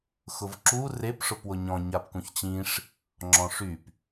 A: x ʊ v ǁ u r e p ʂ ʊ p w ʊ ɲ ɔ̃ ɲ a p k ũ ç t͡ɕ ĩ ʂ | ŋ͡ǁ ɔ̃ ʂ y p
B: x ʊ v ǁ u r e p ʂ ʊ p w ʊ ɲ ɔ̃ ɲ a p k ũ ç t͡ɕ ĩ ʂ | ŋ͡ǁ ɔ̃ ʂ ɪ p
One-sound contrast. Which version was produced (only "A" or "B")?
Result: A